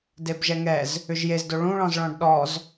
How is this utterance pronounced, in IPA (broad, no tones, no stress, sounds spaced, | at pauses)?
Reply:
d e b ʒ ɛ ŋ ɛ z | ʏ ʒ j e z d o ɭ ũ ɭ ɔ̃ z ɭ ɔ̃ ɖ ɗ ɔ z